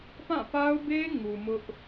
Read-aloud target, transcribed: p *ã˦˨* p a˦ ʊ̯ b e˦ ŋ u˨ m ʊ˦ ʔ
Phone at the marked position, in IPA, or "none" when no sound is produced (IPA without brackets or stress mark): ã˦˨